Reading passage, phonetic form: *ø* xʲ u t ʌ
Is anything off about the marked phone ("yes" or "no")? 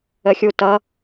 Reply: yes